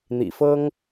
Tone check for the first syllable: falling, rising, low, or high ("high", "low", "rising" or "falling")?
low